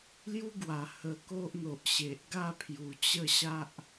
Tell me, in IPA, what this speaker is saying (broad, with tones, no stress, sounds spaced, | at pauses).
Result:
l j u˦ ɡ w a˨˩ h ə˧ k o˦ ʔ n̪ o˨ ʔ ɕ e˨ ʔ ɡ a˥˧ pʰ j u˨˩ t͡ɕ ə˥˧ ɕ a˦ ʔ